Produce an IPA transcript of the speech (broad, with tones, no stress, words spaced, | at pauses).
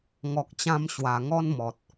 ŋɔ˨k̚t͡ɕã˧m ɕwa˨˩ŋɔ˦n mɔ˨t̚